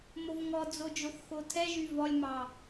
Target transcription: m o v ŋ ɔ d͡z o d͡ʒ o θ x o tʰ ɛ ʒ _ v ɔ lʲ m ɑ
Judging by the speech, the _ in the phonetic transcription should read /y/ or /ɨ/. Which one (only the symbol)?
y